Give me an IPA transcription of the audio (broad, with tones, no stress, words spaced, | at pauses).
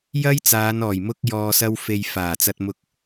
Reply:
jɐ˥jt͡saː˨˧nɔː˨˩j mʊ˥k̚jɔː˧sɐ˥w fe˧j faː˨˩t͡sɐ˧t̚mʊ˧k̚